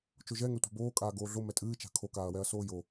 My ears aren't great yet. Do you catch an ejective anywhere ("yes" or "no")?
yes